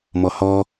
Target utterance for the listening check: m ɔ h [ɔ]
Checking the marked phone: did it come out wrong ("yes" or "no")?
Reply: no